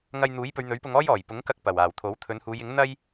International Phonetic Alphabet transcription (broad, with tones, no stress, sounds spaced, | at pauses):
ŋ ɐ˧ j n̪ uː˨˥ j p ɵ˨˧ ɥ n̪ ɵ˨˥ ɥ p ʊ˧ ŋ ɔː˥ j ɔː˨˩ j p ʊ˨˥ ŋ k ɐ˧ k̚ p ɐ˨˩ w aː˨˩ w t̪ʰ o˨˥ w t̪ʰ ɵ˨˧ n h uː˨˧ j ɪ˨˥ ŋ n̪ ɐ˥ j